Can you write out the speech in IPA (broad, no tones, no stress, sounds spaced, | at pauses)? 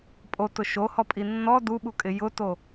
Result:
pʼ o t ʊ ʃ o h ɔ pʼ i nː ɔ d u ɓ u kʼ ɪ j ʊ t o